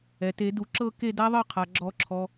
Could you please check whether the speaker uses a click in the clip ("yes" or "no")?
yes